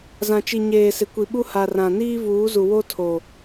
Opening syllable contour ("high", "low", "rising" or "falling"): low